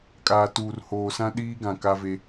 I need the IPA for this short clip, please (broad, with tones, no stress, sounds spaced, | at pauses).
kʼ aː˨ t uː˨ r h oː˨ s ã˦ ɗ iː˦ ɡ ã˨ k a˦ v e˦